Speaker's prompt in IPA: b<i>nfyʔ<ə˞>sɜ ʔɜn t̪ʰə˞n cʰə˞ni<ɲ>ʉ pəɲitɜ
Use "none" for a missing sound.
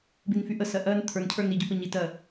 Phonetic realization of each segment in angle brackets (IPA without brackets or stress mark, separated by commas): i, ə, ɟ